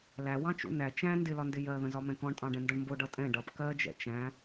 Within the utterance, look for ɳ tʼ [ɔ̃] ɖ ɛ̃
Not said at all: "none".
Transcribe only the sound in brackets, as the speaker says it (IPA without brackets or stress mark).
ɑ̃